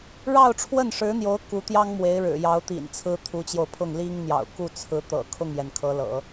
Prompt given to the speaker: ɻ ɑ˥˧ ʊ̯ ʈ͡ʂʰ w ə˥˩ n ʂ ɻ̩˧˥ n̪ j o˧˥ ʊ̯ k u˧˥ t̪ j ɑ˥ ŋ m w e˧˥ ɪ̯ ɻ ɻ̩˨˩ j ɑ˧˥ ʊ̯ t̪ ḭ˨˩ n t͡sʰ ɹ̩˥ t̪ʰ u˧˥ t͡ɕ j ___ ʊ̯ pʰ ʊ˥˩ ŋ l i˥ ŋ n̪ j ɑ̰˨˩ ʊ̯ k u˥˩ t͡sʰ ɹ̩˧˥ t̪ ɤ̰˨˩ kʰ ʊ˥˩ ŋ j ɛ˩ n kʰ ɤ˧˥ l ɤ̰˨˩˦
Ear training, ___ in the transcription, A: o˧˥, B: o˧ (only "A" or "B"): B